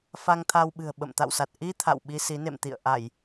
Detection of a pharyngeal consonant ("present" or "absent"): absent